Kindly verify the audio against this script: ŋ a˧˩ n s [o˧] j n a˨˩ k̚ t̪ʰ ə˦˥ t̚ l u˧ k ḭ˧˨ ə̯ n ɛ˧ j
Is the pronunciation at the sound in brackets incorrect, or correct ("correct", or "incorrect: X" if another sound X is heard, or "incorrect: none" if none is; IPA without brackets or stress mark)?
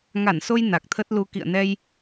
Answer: correct